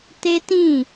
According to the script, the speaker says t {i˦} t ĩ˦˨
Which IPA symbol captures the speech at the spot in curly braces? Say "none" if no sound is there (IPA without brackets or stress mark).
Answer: e˦